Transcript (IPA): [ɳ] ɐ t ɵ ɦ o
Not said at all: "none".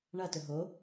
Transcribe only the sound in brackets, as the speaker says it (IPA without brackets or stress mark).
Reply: ɳ